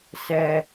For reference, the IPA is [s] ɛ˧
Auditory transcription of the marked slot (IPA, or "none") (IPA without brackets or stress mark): s